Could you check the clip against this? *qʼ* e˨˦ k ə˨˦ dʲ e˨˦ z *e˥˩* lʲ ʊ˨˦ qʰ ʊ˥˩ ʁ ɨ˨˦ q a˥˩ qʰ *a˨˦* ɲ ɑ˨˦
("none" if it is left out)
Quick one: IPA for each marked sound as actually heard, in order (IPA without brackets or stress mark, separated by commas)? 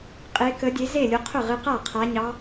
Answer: qʼ, e˥˩, a˨˦